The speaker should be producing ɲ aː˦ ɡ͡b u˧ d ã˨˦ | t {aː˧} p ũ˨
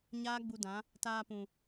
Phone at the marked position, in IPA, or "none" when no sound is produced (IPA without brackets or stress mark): aː˧